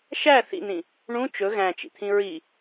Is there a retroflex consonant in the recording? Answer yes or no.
yes